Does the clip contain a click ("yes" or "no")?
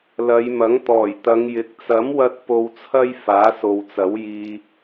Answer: no